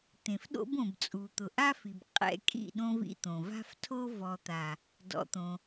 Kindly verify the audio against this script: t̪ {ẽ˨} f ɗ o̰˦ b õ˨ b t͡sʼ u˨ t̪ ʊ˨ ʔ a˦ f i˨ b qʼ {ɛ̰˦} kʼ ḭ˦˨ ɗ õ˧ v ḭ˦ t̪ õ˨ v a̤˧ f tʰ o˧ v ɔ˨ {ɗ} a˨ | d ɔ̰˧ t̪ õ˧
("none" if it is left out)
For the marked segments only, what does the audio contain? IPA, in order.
ẽ˨, ɛ̰˧, t̪

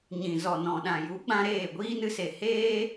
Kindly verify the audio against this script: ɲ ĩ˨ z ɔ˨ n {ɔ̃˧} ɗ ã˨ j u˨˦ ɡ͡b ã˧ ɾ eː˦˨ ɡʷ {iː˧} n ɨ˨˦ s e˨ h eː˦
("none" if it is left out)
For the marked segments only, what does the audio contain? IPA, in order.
ɔ̃˨, iː˦

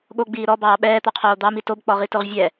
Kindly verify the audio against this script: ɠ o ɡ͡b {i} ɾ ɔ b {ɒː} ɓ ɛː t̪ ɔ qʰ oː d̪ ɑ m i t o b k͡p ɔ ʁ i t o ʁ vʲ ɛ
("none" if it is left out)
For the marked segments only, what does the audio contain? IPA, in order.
iː, ɑː

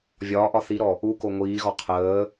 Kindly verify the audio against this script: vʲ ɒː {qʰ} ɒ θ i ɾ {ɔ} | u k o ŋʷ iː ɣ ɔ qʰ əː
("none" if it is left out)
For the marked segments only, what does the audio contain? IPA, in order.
ʔ, ɔ

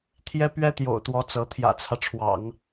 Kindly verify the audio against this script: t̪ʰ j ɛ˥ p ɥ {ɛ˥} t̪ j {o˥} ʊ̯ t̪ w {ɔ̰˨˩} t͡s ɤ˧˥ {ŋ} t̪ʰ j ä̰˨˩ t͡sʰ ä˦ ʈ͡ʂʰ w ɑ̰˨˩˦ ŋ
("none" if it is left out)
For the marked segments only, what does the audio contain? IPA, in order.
ɛ˥, o̰˨˩, ɔ˧˥, none

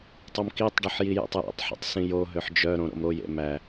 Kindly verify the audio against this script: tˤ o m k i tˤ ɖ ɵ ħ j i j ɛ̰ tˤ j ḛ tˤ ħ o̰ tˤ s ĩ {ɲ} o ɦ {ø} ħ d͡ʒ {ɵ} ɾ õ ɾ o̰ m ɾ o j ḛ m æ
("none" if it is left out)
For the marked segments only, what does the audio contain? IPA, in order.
j, ø, œ

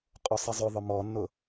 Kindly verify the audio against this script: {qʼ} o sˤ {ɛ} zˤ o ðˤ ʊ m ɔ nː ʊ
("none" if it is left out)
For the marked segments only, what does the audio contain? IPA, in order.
qʼ, ɛ

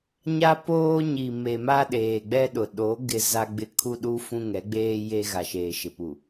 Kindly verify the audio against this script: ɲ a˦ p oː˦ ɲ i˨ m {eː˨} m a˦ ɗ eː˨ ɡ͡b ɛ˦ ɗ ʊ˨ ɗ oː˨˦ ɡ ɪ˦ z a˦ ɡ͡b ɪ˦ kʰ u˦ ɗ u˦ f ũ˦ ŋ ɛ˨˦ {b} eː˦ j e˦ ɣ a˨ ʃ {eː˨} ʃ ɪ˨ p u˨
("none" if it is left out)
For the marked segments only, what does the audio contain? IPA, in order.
e˨, ɡ͡b, eː˨

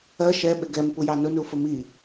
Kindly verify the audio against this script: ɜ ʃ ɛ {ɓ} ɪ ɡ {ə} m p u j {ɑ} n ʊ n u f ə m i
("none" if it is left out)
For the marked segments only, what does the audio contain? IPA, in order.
ɓ, ɛ, ɑ

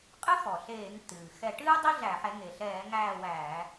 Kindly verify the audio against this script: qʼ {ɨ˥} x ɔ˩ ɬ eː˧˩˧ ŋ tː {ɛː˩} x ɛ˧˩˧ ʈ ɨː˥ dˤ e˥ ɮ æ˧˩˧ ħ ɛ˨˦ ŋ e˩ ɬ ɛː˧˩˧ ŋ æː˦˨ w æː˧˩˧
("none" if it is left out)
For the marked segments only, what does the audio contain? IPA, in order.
ɨ˥, ɨː˩

